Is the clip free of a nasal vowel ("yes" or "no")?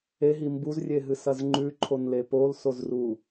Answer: yes